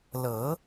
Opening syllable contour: rising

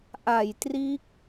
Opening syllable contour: low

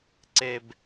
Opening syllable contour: high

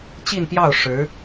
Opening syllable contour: falling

